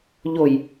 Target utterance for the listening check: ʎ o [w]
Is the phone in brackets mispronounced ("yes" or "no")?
yes